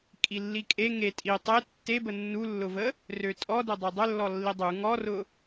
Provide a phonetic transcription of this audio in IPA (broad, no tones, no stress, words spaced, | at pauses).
kʼilːikʼe ŋe tʼi tˤe tːebə nːulːʊvə | røtʼɔdɵ dˤedˤɵlːɔ lːidˤu ŋɔrʊ